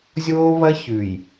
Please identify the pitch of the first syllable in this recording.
high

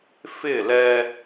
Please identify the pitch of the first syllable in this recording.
falling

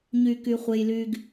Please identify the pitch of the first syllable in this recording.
low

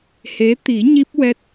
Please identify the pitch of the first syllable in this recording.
rising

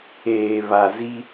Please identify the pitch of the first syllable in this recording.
low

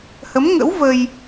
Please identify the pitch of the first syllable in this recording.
rising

